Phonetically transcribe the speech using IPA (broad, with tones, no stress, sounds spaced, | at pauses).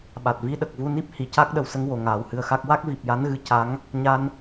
ɓ a˨˩ t̚ v i˧˥ ɗ ə˨˩ k̚ v u˧ n i˦˥ p̚ h i˨˩˨ c a˦˥ k̚ ɗ ə˨˩ w s ə˧ ŋ w o˨˩ ŋ aː˨˩˦ w h ɨ˧˥ ə̯ x a˦˥ k̚ w a˦˥ k̚ v i˨˩ p̚ j a˧˥ n ɣ ɨ˧ c a˧˥ ŋ | ɲ a˧ n